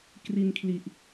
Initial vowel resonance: oral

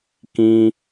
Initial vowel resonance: nasal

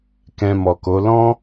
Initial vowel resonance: nasal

